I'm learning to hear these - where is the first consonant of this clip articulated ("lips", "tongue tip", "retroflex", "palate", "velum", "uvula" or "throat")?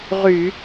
uvula